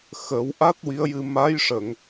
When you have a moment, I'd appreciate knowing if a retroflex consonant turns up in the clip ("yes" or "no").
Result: yes